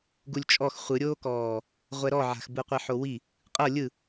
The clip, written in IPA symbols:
ɡulʲt͡ʃʼɔx χʷɯɾʲoːkɔː | ʁʷɛɾɔʕa̤xbɯ qʷiħowi | qʼɤ lʲɯ

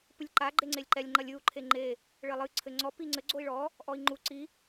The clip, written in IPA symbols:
pɨlʲǃa ɡ͡ǃeŋ͡ǀelʲǃɛlʲ ŋ͡ǃɐlʲɨu̯ ǃʰeŋ͡ǃe | ɭɘlˠɨ ǀʰɘŋ͡ǀɔ piŋ͡ǀɘ ɡ͡ǀoi̯ɭɔ | ʔɔi̯ŋ͡ǃu ǀi

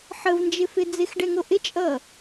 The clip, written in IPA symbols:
ħəvnd͡ʒɪfɪ d͡zɪxɖɛŋo ʔɪt͡ʃʼʌ

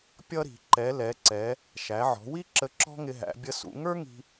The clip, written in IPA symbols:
pʲʌ˥ɾi̤˩˧ ǃɛ˩˧lɛ˩˧ǀɛ˩˧ | ʃæ˩˧ʕɔ̤˩˧wi˥ ǁə˧ǁɔ̤˥ ŋɪ˧ɦæ̰˩˧ bʲə˧sṵ˩˧ ŋə˞˥ŋi̤˧

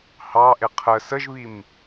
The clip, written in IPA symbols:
hɑʔɪ qʰə səʒβim

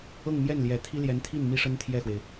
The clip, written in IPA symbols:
ɤ˥˧ŋmjɛ˥˩nljɛ˨˩ t̪ʰi˥ ljɛ˧˥nt̪ʰi˥˩n mi˥ʂə˥nt̪ʰjɛ˥˩xwe˩ɪ̯

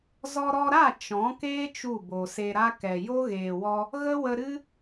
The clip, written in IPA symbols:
zɔ˧ɾɔ˧ɾa˦˨ t͡ʃɔ̃˨˦keː˦ t͡ʃu˦˨bo˨se˧ɾa˦ kɛ˨jo˦ɣeː˨wɔ˧ | ɣə˦wə˧ ɾɨ˦

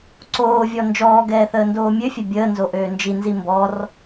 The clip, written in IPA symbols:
ǀoːvʲɔ nd͡ʒɔːɡɛːθəːndoː mʲøfʲɛ bʲəːnzoʔøː nd͡ʒinzi mbɔr

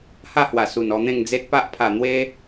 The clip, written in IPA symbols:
ha˥˧hwa˨˩ su˨˩nɔ˧n̪ẽ˥˧ŋd͡ze˦t̚ pa˦ʔpʰa˨˩n̪we˦

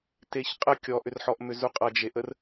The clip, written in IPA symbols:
teçqʼə kʲɔʔʏrħɔʔmʏ zuqʼʌd͡ʒeʔər

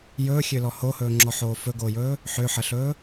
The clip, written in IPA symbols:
jɵːxʲølɔ hohɵːŋ͡ǁɔħoː fɵɡoːjɵː | ħøħəɬɵː

